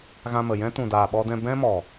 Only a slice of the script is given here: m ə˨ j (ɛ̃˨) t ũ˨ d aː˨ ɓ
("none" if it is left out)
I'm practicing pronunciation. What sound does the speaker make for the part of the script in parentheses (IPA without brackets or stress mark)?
ɛ̃˦